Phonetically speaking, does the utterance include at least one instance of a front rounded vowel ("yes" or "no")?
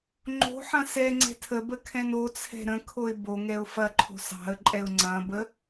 no